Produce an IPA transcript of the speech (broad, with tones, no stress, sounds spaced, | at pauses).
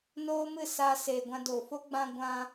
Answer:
n oː˦ m ɨ˦˨ s aː˧ s eː˨ ɡʷ ã˧ d oː˨ f o˦ ɡ͡b ã˧ ɡʷ ã˧